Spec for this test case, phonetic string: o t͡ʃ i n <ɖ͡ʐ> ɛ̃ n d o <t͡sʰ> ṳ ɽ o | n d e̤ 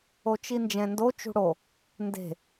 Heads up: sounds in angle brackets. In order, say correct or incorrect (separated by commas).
incorrect, incorrect